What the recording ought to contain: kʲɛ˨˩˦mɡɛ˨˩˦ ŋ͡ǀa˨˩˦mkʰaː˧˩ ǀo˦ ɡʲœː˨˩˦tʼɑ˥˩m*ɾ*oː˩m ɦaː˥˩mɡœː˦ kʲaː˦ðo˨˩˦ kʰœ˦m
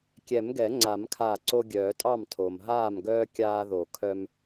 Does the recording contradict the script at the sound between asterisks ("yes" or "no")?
yes